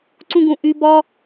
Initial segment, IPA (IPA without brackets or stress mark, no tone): ǀ